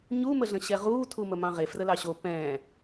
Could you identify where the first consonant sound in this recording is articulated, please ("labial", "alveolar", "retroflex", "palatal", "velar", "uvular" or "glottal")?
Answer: palatal